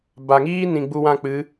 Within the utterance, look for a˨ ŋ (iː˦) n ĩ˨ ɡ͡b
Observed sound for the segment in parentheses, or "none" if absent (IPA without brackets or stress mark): iː˦